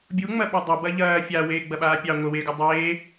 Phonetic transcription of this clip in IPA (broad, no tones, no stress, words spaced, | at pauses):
bʲuŋ͡mɐ ɓedˤɑ bɐʎɐː fʲaweː ɡ͡bɐɓaːpʲɑ ŋʷəweɡu dˤeː